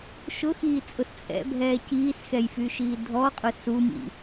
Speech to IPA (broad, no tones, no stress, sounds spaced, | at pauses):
ʃ ʊ x iː t͡sʼ ʊ s t͡sʼ ɛ̰ bʱ ɛː c iː s x ɛ j f y ʃ iː dʱ ɔ qʼ ʊ s u m ḭ